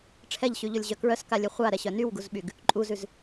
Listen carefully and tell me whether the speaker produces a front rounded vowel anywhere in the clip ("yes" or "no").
yes